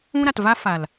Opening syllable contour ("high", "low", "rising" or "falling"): high